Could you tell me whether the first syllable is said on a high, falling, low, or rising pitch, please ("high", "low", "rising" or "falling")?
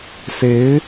rising